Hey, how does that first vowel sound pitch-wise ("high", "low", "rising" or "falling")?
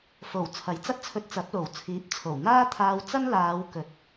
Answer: low